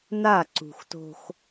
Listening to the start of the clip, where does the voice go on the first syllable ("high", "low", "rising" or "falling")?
falling